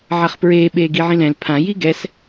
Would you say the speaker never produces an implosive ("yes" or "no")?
no